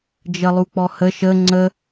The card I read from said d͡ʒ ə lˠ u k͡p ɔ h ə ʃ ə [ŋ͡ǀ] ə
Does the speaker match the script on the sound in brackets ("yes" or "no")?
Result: yes